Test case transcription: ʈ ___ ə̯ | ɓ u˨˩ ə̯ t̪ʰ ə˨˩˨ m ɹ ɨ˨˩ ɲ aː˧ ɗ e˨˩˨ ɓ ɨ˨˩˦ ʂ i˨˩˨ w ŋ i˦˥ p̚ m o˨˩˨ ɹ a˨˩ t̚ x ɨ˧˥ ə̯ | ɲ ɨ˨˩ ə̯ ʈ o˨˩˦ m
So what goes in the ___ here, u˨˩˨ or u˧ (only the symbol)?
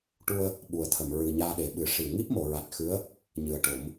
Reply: u˧